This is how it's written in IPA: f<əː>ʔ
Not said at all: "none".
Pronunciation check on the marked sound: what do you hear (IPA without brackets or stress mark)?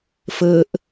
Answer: əː